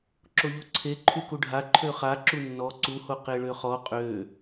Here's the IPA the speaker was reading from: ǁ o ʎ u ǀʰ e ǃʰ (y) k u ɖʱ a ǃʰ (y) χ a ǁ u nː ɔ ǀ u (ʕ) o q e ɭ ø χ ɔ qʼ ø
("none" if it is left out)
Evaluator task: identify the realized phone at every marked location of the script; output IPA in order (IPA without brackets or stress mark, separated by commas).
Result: y, ø, h